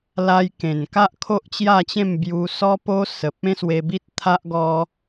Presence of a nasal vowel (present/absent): present